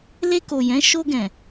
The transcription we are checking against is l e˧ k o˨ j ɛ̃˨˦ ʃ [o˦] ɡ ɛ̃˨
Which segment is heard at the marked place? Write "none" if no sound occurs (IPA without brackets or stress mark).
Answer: o˧